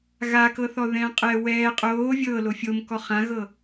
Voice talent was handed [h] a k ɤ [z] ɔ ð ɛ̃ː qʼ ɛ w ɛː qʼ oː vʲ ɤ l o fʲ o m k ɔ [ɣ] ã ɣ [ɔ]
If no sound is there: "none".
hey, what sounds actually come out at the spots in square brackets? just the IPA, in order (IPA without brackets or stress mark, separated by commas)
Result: ɣ, θ, χ, ɤ